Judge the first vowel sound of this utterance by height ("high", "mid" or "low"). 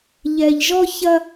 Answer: mid